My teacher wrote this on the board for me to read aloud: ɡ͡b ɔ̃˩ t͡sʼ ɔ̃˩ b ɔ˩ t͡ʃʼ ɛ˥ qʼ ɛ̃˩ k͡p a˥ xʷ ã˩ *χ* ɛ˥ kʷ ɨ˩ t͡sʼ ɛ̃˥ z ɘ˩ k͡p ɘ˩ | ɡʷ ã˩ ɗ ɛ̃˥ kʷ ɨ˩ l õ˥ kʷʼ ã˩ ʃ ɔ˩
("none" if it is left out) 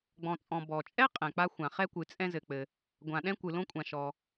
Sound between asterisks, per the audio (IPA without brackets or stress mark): χ